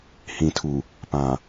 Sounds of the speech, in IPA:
hĩ˨tʰu˨ | pã˨

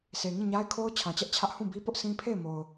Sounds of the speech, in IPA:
sʰe˨ŋĩ˦˨ɲa˦ɪ̯kʰo˦ʊ̯ t͡ɕʰã˨t͡ɕɛ˦ʔt͡ɕʰä˦ʔ hũ˦˨bi˦pʊ˦ʔsĩ˦ pʰe˦˨ɪ̯mo˨ʊ̯

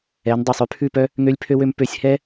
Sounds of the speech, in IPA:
ɛ˨˦ndˤy˨sˤ ʉ˧pʰʉ˦˨pœ˦ | ŋø˧lʲpʰø˧wø˧m pø˧sʲhɛ˦

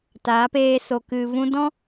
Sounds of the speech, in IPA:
taː˨˦peː˧so˨ kɨ˨vũ˧dɔ̃˦

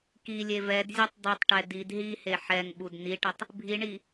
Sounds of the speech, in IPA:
kilʲe vɛdzʲetˤ dˤitˤʈɛ did ɦihe ħɛŋɓud niʈətˤ | bʱiɳi

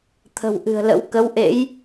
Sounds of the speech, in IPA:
t̪ʰə̤˨˩wʔɨ̤˨˩ə̯lə̰˧˥w kə˨˦wʔḛ˧˥j

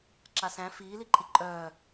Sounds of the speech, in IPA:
ǁasæ̃ fiːliǃʼi ǃʼœː

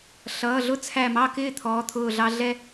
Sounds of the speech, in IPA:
ɬʌː˩˧˩ɮʊ˥˨t͡sʰæ˧˩ mɑ˥˨kɪː˥˨ t̪ʰɔː˩˧˩t̪ʰʊː˧˩ɮɑ˦ɮɛ˦

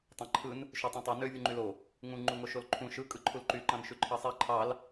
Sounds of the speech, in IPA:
tˤɑ̃ǃʰɯn | ʃøtˤẽtˤo nø vʲuŋ͡ǃylo | ŋũ ŋ͡ǃuŋoʃolǃʰũ ʃɯ kʼɯǃʰulǃy ǃɑ̃nʃyǃʰɑsˤi ǃʰɑl

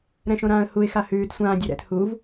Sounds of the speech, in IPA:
ɾɛ̃ʃõɾãːə̯huɪ̯ xahʉːd sʷãː dʲoɾɛ̰t huv

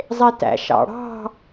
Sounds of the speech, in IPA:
zˤetæ̰ʃɑ̰ɽɑ̤

